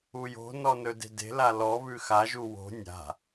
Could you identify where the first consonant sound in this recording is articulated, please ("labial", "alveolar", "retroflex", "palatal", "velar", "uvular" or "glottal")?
palatal